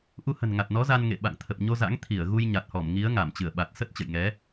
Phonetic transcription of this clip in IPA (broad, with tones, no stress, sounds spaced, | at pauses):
ʔ u˧ h ə̤˨˩ n ŋ a˨˩ t̚ n ɔ˨˦ z a˧ n ŋ ḛ˧˨ ɓ a̰˧˨ ŋ t̪ʰ ə˨˩ p̚ ɲ o˧ z a̰˧˥ ŋ t̪ʰ i˧˩ ə̯ ɣ u˧ j ɲ a˨˩ t̚ h ɔ˧˩ m ŋ i˨˦ ə̯ ŋ a˧˩ m t͡ɕ ɨ˧˩ ə̯ ɓ a˨˩ t̚ s ə˦˥ t̚ t͡ɕ ə̰˧˨ j ŋ ɛ˨˦